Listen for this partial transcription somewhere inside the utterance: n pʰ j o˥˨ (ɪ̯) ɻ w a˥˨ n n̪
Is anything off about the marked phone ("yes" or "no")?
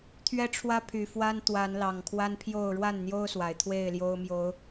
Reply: yes